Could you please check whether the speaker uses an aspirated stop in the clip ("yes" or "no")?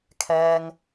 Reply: yes